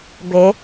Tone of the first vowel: rising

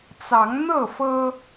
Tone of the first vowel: rising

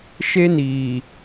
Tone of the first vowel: high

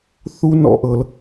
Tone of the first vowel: high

